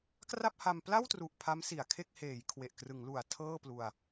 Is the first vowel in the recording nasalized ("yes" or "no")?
no